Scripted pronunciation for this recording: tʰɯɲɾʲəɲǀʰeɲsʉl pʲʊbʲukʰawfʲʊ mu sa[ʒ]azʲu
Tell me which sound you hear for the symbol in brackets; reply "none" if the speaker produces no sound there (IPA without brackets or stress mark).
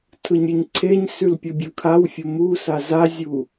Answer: z